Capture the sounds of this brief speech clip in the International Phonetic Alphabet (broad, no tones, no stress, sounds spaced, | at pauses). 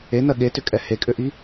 e n ɜ ɠ e t ʏ kʼ ɛ h e kʼ ʏ ʔ i